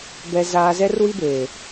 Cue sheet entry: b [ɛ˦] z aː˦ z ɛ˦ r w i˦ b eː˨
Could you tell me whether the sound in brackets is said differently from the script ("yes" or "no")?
no